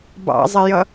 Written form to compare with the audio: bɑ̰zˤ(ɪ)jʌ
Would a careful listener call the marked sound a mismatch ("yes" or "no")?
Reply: no